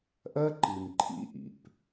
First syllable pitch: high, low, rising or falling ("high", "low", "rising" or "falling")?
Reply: high